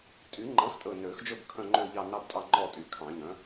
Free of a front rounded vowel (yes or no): no